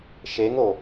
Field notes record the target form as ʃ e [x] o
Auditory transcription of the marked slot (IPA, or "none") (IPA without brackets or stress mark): ŋ